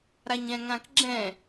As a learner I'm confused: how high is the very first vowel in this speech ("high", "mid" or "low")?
low